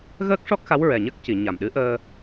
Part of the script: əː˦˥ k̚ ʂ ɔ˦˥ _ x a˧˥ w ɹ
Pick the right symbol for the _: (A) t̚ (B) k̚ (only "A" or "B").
B